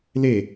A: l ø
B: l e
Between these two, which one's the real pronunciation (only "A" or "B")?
B